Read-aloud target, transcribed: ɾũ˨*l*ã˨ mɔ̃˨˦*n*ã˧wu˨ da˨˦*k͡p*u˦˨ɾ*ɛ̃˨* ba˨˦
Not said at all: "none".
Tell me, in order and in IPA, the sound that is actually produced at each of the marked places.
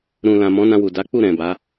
l, n, k͡p, ɛ̃˨

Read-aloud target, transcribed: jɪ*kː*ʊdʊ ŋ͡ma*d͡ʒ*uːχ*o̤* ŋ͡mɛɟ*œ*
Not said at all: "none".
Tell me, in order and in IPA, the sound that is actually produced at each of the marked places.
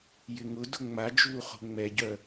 ŋ, d͡ʒ, o̤, œ

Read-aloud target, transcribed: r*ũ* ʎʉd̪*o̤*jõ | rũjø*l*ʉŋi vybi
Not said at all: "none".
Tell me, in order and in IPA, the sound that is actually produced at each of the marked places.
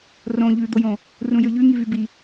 õ, o, ʎ

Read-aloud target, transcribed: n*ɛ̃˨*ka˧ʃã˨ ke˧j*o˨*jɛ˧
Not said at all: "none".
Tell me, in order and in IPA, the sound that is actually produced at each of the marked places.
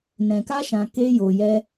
ɛ̃˨, o˨

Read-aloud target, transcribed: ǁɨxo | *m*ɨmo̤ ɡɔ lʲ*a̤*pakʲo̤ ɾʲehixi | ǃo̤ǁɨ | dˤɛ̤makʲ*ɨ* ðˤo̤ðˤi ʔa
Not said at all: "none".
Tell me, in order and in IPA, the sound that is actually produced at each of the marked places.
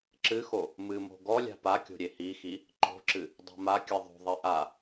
m, a̤, ɨ

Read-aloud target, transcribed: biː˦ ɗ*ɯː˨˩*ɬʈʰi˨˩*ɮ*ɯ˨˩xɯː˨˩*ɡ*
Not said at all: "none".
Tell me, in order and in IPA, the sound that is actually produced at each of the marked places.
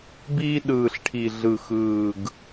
ɯː˨˩, ɮ, ɡ

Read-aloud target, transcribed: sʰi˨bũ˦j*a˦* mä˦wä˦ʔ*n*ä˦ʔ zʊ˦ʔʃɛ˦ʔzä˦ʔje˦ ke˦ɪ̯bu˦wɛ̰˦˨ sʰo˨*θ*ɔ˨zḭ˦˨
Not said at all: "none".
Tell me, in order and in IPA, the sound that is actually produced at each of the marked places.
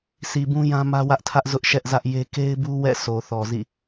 ã˦, tʰ, θ

